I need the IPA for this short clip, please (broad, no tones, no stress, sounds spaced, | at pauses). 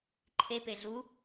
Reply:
ǃʰ e p e ɮ u